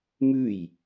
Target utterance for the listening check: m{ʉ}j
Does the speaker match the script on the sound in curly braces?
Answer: yes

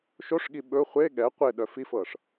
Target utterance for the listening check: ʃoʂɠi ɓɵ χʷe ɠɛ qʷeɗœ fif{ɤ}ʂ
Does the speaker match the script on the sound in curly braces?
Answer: yes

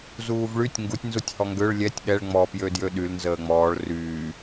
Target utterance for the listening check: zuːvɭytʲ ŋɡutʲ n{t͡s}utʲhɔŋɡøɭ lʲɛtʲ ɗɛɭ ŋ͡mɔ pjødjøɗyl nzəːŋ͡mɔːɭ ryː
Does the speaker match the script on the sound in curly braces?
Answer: no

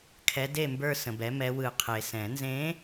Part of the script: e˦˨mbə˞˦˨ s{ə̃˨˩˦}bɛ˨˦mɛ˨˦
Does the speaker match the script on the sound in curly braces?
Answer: no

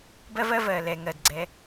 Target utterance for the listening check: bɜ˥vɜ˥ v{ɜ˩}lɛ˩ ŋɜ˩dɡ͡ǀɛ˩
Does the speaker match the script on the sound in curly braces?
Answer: yes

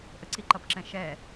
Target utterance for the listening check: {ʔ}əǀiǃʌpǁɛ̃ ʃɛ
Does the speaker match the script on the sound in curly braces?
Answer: yes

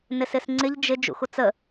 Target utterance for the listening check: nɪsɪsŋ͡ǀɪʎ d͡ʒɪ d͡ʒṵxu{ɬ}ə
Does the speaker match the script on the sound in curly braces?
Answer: no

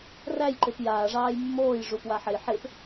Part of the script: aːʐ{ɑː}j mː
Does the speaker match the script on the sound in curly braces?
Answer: yes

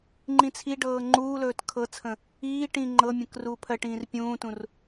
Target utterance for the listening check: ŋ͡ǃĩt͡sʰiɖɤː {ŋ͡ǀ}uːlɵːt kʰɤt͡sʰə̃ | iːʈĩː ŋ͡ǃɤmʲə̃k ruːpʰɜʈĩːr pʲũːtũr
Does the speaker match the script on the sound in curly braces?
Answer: no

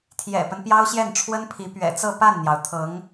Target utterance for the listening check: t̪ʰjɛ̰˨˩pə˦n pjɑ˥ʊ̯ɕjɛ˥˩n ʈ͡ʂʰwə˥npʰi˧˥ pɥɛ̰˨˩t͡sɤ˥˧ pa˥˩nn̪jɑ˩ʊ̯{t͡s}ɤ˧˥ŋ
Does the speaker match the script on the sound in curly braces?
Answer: no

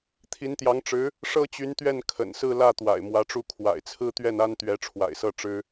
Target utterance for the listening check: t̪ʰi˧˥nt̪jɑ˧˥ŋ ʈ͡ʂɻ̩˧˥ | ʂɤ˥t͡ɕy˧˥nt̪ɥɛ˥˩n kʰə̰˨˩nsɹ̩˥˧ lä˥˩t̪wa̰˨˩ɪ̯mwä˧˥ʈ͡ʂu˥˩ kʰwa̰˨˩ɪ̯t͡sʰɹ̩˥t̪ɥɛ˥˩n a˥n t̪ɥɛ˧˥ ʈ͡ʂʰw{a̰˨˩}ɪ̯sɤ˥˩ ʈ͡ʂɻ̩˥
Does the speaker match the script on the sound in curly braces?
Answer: yes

